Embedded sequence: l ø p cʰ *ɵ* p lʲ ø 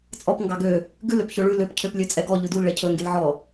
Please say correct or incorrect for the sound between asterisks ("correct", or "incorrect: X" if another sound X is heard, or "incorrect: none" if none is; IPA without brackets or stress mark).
incorrect: ø